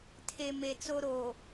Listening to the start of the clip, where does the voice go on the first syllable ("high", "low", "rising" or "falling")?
low